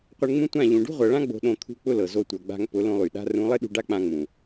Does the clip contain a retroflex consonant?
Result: yes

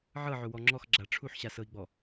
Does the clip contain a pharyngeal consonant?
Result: yes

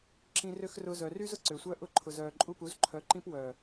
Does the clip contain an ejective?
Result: yes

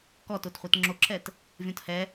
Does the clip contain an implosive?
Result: no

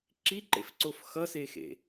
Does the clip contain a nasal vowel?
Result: no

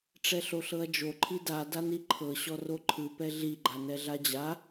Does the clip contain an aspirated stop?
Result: yes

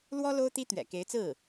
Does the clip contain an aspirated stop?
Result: no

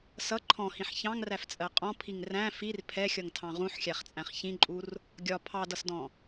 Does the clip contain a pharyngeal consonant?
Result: yes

